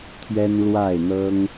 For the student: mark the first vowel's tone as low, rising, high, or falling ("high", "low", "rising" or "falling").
high